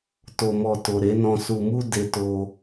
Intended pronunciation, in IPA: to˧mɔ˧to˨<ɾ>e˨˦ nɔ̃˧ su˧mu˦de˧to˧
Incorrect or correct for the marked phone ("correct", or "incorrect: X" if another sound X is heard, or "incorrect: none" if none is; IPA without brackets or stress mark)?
correct